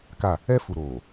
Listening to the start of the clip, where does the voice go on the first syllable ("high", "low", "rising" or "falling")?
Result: falling